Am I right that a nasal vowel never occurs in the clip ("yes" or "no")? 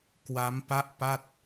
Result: yes